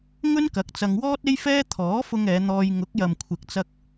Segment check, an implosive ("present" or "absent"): absent